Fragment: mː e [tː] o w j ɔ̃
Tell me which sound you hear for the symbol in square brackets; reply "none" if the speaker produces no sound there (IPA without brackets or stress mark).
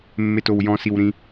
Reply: t